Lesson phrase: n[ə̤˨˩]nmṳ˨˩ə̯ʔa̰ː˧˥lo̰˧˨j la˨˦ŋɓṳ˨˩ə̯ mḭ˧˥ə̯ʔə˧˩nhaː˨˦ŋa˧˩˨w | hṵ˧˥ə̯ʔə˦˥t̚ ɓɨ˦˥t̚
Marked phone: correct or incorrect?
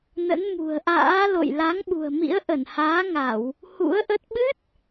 incorrect